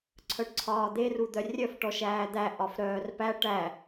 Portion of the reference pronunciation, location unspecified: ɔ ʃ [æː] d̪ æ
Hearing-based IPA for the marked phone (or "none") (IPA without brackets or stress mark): æː